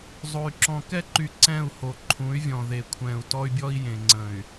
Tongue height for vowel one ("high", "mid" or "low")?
mid